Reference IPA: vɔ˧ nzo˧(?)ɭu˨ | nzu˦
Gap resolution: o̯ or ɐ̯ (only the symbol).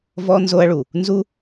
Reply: ɐ̯